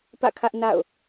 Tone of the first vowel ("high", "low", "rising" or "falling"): falling